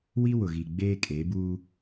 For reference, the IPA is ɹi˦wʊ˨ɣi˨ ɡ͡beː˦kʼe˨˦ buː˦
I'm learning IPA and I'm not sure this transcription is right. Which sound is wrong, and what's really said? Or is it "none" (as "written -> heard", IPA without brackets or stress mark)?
ɹ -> w